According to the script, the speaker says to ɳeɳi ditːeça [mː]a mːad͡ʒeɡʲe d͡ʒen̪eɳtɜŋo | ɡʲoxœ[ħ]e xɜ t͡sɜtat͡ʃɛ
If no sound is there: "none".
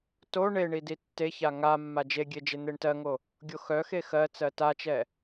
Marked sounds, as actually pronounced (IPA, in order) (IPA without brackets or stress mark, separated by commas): ŋ, x